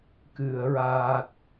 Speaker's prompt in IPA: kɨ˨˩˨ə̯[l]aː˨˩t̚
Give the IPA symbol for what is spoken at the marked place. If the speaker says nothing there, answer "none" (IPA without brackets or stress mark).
ɹ